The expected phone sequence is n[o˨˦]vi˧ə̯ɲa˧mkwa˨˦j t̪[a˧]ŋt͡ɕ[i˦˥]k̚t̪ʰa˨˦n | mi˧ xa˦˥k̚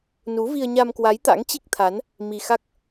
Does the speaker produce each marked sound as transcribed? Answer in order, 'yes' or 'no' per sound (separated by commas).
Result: no, no, yes